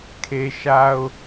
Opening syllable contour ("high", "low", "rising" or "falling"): low